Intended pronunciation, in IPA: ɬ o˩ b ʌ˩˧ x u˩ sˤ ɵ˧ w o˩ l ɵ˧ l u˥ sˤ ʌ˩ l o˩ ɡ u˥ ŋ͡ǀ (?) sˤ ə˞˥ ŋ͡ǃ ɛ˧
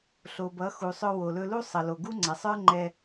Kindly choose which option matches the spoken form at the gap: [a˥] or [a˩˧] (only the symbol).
a˩˧